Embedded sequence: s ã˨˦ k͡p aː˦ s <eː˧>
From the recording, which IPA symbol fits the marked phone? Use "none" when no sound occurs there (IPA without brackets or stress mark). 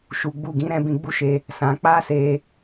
eː˧